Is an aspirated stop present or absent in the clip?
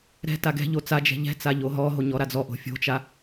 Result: absent